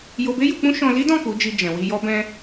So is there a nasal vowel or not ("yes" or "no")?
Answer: yes